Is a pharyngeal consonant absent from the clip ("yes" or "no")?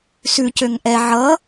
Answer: no